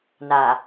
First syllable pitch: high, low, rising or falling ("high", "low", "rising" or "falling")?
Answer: low